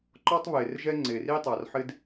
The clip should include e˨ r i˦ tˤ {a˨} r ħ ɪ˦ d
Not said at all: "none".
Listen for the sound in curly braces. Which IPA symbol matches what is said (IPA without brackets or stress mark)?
a˨